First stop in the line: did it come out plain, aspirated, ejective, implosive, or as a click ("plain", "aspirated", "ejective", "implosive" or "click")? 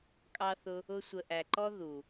ejective